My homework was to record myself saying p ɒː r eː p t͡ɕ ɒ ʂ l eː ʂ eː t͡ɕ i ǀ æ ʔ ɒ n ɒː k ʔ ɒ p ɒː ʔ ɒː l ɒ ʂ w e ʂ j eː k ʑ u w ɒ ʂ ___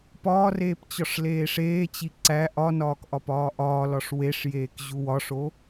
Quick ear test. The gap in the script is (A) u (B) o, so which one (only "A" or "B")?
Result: B